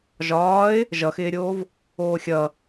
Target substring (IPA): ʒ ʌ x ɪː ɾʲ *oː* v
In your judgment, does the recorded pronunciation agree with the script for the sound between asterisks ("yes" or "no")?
yes